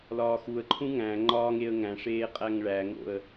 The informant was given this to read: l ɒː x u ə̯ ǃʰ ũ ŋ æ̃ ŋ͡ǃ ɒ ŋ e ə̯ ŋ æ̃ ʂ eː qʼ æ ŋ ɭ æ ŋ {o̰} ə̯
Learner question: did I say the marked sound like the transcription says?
yes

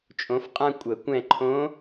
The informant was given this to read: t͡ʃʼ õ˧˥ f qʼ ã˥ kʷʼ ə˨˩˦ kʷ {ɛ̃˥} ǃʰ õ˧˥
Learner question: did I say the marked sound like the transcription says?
no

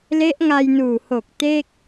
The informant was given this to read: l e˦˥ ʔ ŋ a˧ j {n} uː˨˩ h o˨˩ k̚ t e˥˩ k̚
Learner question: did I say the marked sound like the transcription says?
yes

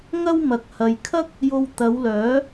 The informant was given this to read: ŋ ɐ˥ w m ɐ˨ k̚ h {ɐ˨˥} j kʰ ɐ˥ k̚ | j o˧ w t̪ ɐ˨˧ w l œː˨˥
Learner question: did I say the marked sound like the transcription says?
no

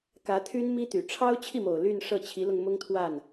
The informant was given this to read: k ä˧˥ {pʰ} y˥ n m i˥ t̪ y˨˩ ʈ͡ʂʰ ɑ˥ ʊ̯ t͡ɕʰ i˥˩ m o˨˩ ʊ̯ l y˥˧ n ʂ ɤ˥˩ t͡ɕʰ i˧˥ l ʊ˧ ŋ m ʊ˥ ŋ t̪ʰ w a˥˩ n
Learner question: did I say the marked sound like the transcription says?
no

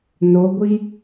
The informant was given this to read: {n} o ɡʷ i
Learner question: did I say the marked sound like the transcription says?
yes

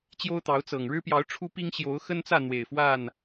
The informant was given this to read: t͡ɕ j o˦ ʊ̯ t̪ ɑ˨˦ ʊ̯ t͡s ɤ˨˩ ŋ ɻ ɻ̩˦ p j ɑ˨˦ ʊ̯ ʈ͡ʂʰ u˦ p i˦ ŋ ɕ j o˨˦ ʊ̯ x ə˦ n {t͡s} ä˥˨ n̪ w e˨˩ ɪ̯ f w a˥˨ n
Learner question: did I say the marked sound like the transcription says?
yes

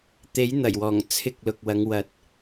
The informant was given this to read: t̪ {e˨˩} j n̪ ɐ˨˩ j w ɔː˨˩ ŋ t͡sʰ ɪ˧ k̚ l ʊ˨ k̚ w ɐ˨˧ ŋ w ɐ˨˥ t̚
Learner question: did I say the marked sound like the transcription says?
no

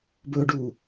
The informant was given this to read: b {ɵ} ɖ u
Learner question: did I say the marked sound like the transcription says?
yes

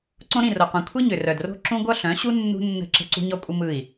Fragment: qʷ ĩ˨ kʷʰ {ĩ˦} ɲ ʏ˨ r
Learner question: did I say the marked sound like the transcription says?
no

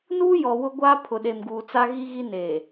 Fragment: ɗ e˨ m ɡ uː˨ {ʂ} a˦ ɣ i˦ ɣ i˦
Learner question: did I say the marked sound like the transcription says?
no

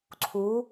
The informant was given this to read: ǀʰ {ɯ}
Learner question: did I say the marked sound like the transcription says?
no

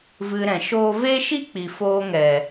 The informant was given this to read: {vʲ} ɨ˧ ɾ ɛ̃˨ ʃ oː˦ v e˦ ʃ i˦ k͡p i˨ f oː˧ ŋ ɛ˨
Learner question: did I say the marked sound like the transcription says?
no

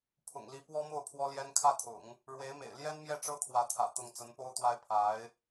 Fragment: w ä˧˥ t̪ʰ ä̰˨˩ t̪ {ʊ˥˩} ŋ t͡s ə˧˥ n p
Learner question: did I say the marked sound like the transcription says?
yes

